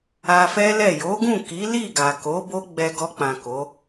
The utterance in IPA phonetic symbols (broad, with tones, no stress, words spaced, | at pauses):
a˧fɛ˦lɛ˦˨ jo˨˦ɡũ˦˨ ki˨˦li˦˨ɡa˨ko˨˦ bo˦ɡ͡bɛ˧ɡɔ˧k͡pã˨ ko˨˦